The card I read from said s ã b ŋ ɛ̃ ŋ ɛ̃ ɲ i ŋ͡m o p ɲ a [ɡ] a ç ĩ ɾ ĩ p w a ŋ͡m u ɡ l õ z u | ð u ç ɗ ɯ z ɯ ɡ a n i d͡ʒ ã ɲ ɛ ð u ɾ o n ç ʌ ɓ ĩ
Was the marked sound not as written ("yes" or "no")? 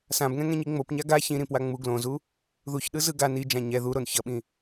no